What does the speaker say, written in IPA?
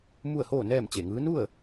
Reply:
m u˥˨ ə̯ h oː˥˨ n ɛː˥˨ m t͡ɕ e˧˩ ŋ ɯː˧˥ n u˥˨ ə̯

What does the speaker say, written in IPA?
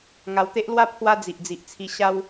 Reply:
ŋ a˧ w t̪ e˦ ʔ l w a˥˧ pʰ w a˦ d͡z i˨ ʔ d͡z i˨ ʔ t͡sʰ i˧ ɕ a˦ w

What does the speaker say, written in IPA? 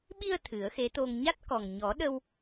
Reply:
ɓ i˧ ə̯ t̪ʰ ɨ˨˩˦ ə̯ x e˧˥ t̪ o˧ ŋ ɲ a˦˥ t̚ k ɔ˨˩ ŋ ɲ ɔ˨˩˦ ɗ ə˧ w

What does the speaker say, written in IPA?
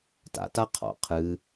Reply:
t a̰ t a qʰ ɔ̰ qʰ ɨ

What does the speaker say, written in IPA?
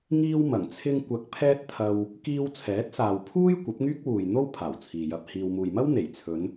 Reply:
ŋ iː˥ w m ɐ˨˩ ŋ t͡sʰ ɪ˥ ŋ kʷ ɐ˧ k̚ pʰ ɛː˥ t̚ t̪ʰ ɐ˧ w | k iː˧ w t͡sʰ ɛː˨˥ t̚ s aː˨ w pʰ uː˥ j kʷ ɐ˨˥ p̚ ŋ yː˥ k̚ w uː˨ j n̪ o˥ w pʰ aː˨˩ w t͡sʰ iː˨ j ɐ˧ p̚ h iː˧ w m uː˨ j m ɐ˥ w n̪ e˨˩ j t͡sʰ ɵ˨˧ n

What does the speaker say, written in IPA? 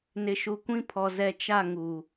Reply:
n ɪ˨ ʃ u˨ kʷ ĩ˦ pʰ ɔ˨ z ɛ˨ t͡ʃ a˦˨ ŋ u˨

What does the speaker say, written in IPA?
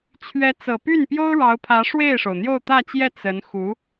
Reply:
t͡ɕʰ ɥ ɛ˧˥ t͡s ɤ˨˩ p y˥˩ n p j o˥ ʊ̯ ɻ ɑ˧˥ ʊ̯ pʰ ä˧˥ ʂ w e˥˩ ɪ̯ ʂ o˩ ʊ̯ n̪ j o˥˧ ʊ̯ t̪ ä˥˧ t͡ɕ j ɛ˥˩ t͡s ə˧˥ n x u˧˥

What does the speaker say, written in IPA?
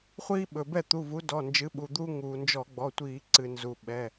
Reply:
χʷ iː˦ ɓ ɵ˩ b ɛ˥˩ t̪ u˩˧˩ v u˨˥ d ɔ˩˧˩ n d͡ʒ ɨ˨˥ ɓ u˩ d̪ u˦ ŋ uː˩ n d͡ʒ ɔ˧˩˧ ɡ͡b ɔ˩˧˩ tʷ iː˧˩˧ ǀ ɨ˩ n z u˩ ɓ ɛ˩˧˩

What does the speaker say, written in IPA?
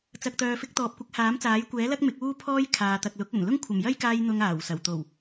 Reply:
t͡s ɐ˨ k̚ t̪ œː˨ f ɪ˧ k̚ t̪ ɔː˨ p̚ kʷ ɪ˨˥ k̚ h aː˨˥ m t͡s aː˨˥ j kʷ ɛː˨˥ l ɐ˥ k̚ m ɪ˨˥ k̚ uː˥ pʰ ɔː˥ j kʰ aː˨ t̪ ɐ˨ k̚ l ʊ˨˥ k̚ ɵ˨˩ n l ʊ˥ ŋ kʷʰ ɐ˨˩ m j ɐ˥ j k aː˧ j n̪ ʊ˧ ŋ aː˨˩ w s ɐ˨˩ w t̪ o˨˩ w

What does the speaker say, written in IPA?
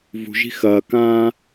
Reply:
v ṳ ʒ i̤ x ɐː k ãː

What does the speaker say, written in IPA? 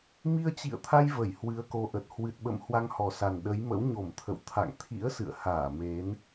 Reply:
m i˧ ə̯ t͡ɕ ḭ˧˨ ə̯ t̪ʰ a˧ j v ə˧˩ j h w ɨ˨˦ ə̯ k o˨˦ ʔ ə˨˩ t̚ h w ɨ˨˩ t̚ ɓ ə̰˧˨ m h w a˧ ŋ h ɔ˨˩ s a˨˩ n ɗ ə˨˦ j m ə̰˧˥ w ɲ o˧˩ m t̪ʰ ə̰˧˨ w t̪ʰ a̰˧˨ ŋ t̪ʰ ḭ˧˥ ə̯ s ɨ̰˧˨ ə̯ h aː˧˩ m e˨˦ n

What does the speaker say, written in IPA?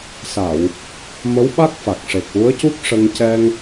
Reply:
s a˨˩˨ w | m ə˧˥ w ɓ a˦˥ k̚ f a˨˩ k̚ ʂ e˨˩ k̚ w u˧˥ ə̯ c u˦˥ k̚ ʂ ə˧ ŋ c ɛ˧ ŋ

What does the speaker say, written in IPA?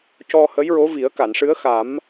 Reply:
c ɔ˧ h ə˧˥ j ɹ o˧˥ v i˨˩˦ ə̯ k a˨˩˨ n ʂ ɨ˧˥ ə̯ x a˨˩˦ m

